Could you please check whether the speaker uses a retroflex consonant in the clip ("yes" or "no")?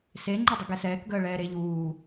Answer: yes